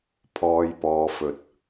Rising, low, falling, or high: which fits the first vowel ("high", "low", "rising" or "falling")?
low